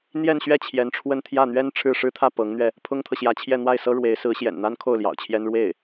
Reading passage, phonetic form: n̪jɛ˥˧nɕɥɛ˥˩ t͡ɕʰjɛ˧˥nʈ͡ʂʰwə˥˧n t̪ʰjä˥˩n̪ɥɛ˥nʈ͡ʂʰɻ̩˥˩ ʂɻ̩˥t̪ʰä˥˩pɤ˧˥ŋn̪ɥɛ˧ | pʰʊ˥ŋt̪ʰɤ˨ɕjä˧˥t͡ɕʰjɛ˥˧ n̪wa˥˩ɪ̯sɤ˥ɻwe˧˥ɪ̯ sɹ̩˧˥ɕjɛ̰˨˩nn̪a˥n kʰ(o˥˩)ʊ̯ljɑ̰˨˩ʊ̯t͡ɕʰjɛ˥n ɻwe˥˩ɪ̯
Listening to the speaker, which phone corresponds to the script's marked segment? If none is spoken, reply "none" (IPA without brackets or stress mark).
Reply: o˥˩